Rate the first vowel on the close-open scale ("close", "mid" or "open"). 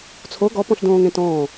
mid